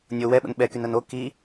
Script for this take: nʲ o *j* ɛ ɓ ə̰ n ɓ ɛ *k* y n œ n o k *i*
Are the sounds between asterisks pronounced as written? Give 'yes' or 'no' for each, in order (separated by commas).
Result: no, yes, yes